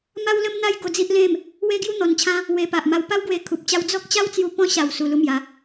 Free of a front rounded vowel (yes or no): yes